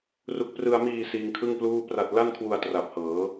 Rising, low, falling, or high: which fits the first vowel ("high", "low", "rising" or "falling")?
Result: low